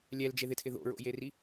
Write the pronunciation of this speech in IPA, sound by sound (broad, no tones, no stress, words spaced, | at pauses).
lʲɛld͡ʒeðɪtʰɪ ðo̰ɹo̰jeri